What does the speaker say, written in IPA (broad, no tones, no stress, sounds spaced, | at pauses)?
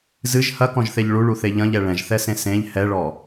z ɨ ʒ h ɐ k ɔ̃ ʒ θ e ʎ ɭ u ɭ u θ e ʎ ɐ̃ ʎ ɛ ɭ ɛ̃ ʒ θ ɛ s ẽ s ẽ ʎ h ɛ ɭ ɔ